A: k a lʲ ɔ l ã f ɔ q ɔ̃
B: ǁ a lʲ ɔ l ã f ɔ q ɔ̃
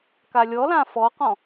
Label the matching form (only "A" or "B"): A